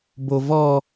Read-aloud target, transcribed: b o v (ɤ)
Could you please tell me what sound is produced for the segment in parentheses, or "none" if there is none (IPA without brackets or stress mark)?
ɔ